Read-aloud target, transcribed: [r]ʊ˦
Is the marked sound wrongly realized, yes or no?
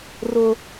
no